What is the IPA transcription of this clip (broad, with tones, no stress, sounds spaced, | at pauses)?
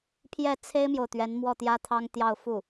pʰ j ɛ˥˩ t͡sʰ e˥ ɪ̯ m j o˨ ʊ̯ t̪ ɥ ɛ˧˥ n m w ɔ˥˩ t̪ j ä˥ t̪ʰ ɑ˥ ŋ t̪ j ɑ˥˧ ʊ̯ f u˥˩